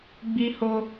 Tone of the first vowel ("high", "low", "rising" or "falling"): high